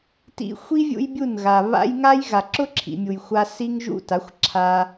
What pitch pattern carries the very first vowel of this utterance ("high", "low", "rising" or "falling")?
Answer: high